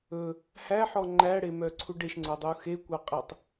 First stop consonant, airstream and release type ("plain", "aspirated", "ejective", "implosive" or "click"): click